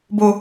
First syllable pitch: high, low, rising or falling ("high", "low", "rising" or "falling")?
high